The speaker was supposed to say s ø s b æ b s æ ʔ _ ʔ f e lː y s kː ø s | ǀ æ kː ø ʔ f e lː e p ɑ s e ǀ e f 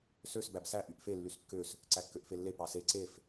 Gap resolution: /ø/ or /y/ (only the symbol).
y